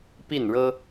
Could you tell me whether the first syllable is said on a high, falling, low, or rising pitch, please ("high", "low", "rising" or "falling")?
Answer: falling